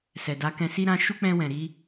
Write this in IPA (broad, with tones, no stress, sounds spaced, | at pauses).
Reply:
s ɛ˨ d a˨˦ k ɛ̃˧ s i˦ ɾ ã˧ ʃ u˦ k͡p ɛ̃˧ w ɛ̃˨ ɾ i˧